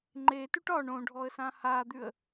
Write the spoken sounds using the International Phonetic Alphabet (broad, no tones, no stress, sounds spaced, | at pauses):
ŋ͡ǃ e t ʉ ʈ ɒ ɳ õ ɖʱ ɔ ə̯ s ã h a d̪ ʉ ə̯